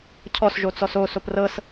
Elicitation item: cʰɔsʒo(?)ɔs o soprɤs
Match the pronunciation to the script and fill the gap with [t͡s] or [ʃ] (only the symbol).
t͡s